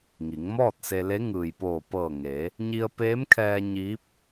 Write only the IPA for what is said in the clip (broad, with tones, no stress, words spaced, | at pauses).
ŋi˩˧ŋmɔː˥˨t̚se˧le˧˥ ŋɯː˩jpoː˧˩pɤː˧˩ ŋeː˩˧ | ɲi˧ə̯peː˧˥mkʰɛː˧ ɲiː˧˥p̚